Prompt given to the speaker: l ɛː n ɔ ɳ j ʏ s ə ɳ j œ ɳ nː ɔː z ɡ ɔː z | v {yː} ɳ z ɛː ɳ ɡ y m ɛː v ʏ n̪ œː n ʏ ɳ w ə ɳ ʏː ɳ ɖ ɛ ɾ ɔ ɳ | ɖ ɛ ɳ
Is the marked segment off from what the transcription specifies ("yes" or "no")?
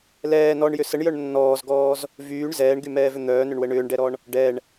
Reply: no